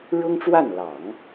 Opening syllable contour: high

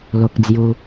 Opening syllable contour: high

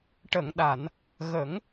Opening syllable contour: low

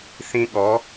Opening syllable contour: high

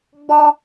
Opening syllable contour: high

